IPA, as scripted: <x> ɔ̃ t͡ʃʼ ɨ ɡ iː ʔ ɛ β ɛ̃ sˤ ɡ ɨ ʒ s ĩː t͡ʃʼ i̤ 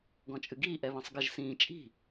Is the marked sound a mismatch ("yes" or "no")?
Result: yes